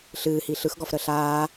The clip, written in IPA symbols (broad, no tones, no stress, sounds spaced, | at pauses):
ɬ ɨː h i ɬ ɯ x ɡ ɔ f ɾ əː ɬ aː